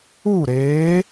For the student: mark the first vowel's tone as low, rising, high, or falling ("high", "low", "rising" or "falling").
falling